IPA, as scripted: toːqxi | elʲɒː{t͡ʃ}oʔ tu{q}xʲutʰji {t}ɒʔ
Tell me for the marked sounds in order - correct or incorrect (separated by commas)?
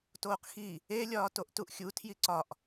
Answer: incorrect, incorrect, incorrect